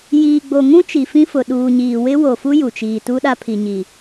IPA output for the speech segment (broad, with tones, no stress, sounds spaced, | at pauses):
j iː˨ ɡ͡b o˨ ŋ ũ˦ t͡ʃ i˨ f ĩ˦ f ʊ˨ ɗ uː˨ ɲ iː˨ w ɪ˦ w o˨ f u˦ j u˨ t͡ʃ iː˨ t u˦ ɗ a˦ pʰ i˨ ɲ i˨